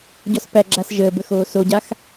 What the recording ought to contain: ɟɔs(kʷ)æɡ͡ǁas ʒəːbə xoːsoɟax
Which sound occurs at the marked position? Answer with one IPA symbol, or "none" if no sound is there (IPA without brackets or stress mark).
p